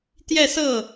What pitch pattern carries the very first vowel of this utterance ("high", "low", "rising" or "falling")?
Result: falling